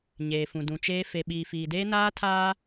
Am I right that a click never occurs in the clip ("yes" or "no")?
yes